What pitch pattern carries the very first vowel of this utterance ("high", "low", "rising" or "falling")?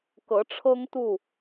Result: rising